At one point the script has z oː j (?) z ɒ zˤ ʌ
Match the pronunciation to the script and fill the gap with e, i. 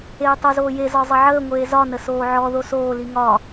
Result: e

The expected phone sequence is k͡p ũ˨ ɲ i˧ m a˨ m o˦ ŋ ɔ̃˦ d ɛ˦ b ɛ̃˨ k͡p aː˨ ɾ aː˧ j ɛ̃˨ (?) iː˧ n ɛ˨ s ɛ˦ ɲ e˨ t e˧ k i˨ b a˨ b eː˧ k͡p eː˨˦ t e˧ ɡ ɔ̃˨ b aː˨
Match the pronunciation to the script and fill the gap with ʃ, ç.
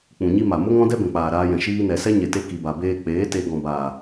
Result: ʃ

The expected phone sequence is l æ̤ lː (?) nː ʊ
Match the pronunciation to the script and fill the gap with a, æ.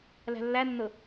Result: æ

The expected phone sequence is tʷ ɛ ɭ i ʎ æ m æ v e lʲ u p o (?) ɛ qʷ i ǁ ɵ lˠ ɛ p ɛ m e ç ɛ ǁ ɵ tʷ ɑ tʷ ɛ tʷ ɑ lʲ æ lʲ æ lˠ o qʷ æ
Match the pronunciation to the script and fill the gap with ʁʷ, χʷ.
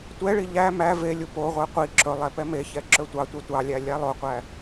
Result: ʁʷ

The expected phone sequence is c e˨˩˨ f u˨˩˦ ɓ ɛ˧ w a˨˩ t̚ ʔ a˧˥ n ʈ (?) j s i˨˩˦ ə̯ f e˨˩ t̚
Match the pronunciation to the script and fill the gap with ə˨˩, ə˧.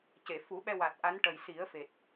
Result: ə˨˩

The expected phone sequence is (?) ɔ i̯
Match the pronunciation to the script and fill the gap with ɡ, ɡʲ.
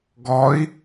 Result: ɡ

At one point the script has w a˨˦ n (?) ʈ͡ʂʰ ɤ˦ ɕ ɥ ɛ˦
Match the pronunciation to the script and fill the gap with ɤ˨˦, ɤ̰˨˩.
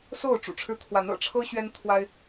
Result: ɤ̰˨˩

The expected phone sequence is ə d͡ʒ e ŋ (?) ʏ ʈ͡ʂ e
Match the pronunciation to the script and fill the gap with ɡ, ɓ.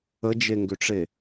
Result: ɡ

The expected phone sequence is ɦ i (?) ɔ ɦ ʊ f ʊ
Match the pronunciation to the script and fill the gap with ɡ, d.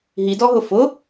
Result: d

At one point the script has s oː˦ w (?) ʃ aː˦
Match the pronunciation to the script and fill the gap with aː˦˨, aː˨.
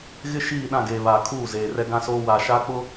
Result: aː˨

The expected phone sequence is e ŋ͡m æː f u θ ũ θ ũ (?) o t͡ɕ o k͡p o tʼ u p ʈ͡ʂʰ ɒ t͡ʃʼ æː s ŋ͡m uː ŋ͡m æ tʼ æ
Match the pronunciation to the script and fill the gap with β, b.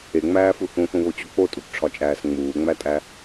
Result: β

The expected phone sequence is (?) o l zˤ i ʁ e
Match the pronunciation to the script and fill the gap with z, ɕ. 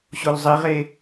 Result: ɕ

